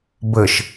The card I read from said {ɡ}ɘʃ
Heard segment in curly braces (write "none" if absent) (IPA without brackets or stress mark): b